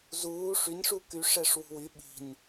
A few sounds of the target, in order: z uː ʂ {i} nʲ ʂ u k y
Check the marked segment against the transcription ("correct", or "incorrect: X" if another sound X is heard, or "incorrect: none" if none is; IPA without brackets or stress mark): incorrect: y